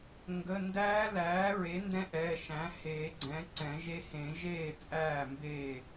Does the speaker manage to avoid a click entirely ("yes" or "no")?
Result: no